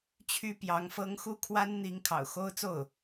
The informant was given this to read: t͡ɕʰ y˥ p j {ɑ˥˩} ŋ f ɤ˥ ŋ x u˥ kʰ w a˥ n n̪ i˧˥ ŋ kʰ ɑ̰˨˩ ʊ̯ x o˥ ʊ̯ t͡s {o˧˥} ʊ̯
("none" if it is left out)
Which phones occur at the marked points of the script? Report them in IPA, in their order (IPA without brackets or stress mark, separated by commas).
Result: ɑ˧˥, o˥˩